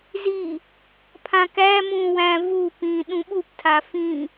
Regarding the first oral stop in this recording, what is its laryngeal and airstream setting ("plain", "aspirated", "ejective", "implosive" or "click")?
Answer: aspirated